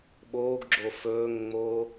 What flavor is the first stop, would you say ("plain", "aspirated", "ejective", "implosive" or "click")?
implosive